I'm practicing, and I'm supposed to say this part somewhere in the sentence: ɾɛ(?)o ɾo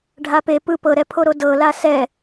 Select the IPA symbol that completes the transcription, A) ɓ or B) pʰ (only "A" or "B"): B